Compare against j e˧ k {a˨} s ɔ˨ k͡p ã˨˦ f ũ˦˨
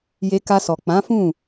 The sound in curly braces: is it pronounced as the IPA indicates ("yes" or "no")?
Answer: no